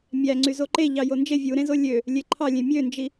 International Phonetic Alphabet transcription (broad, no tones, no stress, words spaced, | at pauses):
mʲæ ŋ͡ǀyzoǃe ʎɑjond͡ʒe vʲuɾẽzo lʲø | lʲeǃʰɑlʲẽ mʲønd͡ʒi